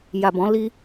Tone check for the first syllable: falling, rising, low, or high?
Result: low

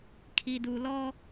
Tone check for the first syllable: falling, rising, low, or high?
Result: low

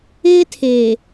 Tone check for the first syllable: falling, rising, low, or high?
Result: high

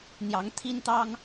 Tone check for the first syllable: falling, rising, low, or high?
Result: rising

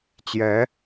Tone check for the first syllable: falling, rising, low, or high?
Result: rising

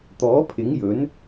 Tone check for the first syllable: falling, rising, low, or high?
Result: rising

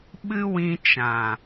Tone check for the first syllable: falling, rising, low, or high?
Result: high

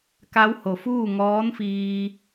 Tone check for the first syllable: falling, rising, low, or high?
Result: rising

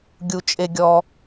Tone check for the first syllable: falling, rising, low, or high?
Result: low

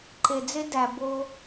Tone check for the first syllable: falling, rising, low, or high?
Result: low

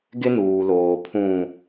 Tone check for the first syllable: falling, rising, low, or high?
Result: high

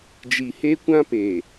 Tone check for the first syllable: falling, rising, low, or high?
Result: low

